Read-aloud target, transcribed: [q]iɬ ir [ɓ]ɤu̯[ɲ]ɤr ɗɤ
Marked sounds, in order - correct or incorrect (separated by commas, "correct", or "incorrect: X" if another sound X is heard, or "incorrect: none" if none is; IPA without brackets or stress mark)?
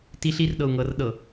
incorrect: t, incorrect: ɗ, incorrect: ŋ